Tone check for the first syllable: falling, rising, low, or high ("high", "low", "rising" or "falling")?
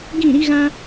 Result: falling